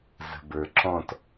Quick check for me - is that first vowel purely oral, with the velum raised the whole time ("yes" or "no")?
yes